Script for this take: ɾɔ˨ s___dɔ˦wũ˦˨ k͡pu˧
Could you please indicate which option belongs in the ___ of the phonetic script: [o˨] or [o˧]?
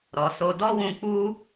o˧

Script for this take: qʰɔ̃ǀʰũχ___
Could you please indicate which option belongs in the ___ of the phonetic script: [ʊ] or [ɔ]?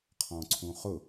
ʊ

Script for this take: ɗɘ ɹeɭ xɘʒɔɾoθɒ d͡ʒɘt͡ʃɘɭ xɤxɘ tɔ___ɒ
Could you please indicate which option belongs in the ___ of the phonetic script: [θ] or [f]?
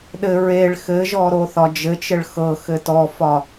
f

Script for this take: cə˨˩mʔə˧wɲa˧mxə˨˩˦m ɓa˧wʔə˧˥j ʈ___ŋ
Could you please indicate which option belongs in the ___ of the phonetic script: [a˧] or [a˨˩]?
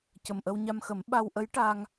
a˧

